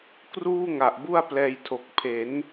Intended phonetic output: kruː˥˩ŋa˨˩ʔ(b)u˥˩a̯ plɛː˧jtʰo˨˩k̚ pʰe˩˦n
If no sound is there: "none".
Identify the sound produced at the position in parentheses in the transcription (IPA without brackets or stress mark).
b